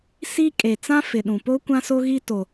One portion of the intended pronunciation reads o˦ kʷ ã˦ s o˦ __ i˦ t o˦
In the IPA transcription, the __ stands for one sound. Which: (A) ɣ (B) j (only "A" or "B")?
A